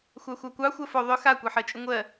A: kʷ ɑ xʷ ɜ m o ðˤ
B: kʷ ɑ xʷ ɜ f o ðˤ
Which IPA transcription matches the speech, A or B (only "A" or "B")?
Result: B